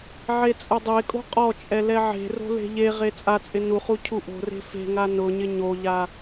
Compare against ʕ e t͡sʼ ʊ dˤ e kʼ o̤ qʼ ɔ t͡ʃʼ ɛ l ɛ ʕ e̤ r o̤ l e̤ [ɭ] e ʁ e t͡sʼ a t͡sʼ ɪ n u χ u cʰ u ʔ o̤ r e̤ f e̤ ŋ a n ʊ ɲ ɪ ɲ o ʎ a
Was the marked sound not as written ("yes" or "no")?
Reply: yes